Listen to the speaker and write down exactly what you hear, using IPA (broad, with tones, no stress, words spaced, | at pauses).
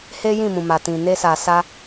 he˦ jĩ˦˨mũ˨ma˨ tĩ˨ ne˧sa˨sa˧